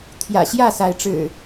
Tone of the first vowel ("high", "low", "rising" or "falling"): low